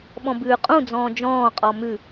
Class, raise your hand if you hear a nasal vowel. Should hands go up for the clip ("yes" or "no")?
yes